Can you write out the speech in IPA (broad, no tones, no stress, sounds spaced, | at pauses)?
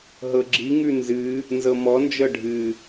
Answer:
ɦ ɤ ɡ͡ǁ i ŋ ʉ n z ɨ | n z ɤ m ɔ n d͡ʒ ɤ ɖʱ ɨ